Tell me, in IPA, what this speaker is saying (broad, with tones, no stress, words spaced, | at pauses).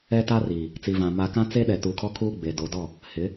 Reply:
ɛ˦ta˦riː˨ | t͡si˨vã˨ ma˦ kã˦t͡se˦ɗɛ˨ tu˨kʰɔ˦ kʰuː˦ɡ͡be˨do˨˦dɔ˦˨ | hɪ˨˦